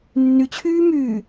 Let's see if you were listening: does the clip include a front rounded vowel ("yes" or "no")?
yes